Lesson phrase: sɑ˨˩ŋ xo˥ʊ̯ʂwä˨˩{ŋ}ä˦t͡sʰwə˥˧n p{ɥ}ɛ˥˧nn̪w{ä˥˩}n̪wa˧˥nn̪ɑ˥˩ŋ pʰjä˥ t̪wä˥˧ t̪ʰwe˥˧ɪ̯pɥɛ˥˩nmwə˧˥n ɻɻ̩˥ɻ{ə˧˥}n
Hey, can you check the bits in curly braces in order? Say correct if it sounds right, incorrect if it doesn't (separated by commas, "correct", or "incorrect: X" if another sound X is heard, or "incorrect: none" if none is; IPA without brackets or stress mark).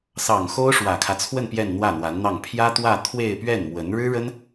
incorrect: kʰ, incorrect: j, correct, incorrect: ə˥